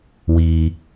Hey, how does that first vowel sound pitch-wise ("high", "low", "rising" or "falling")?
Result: low